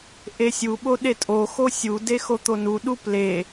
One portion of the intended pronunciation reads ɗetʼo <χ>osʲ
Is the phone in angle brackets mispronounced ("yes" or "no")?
yes